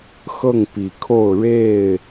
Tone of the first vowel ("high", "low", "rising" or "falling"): falling